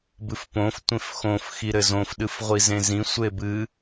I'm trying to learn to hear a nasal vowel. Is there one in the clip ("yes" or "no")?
yes